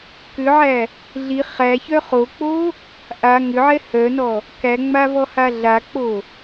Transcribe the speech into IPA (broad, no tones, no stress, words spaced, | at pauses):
kʏʕæ | ɮi χæçœ χok͡po | ʔa ŋʏʕɛ hœnɔ | kæŋ͡mavɔha ɮak͡po